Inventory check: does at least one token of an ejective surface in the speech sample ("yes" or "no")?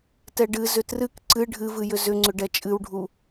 yes